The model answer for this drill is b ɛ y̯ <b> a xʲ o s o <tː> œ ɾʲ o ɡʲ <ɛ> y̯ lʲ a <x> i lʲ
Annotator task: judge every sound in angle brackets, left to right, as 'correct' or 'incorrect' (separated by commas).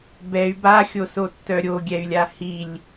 correct, correct, correct, incorrect